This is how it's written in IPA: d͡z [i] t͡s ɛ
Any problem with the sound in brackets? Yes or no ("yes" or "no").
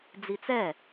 no